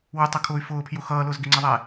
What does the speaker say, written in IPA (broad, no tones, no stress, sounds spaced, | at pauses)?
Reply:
w ʊ tˤ ʌ kʰ ʊː y̯ f ʊː pʰ j ʊ x ʌː l ʊː z ɡ ɪ ŋ͡ǀ ɛ ðˤ ɛː